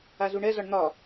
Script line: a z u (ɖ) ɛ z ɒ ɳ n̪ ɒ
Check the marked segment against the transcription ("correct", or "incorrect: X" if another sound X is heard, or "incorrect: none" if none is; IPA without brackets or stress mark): incorrect: ɳ